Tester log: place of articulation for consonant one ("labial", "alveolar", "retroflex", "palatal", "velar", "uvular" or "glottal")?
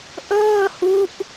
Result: glottal